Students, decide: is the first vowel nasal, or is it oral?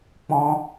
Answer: nasal